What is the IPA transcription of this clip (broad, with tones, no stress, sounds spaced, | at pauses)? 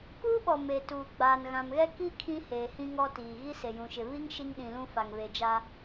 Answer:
k uː˦ ɓ ɔ˨ m e˨ t uː˨ ɡ͡b aː˨ n ɣ ã˨ m ɣ ɛ˦ k i˦ kʰ ĩ˦ h eː˨ h ĩ˦ ŋ ɔ˦ t iː˨ ɣ i˦ s e˨ j ũ˨ ʃ ɪ˨ β i˦ ŋ ʃ i˦ ŋ ɗ ĩ˨ l ũ˦ f a˨ ŋ β e˨ d͡ʒ a˦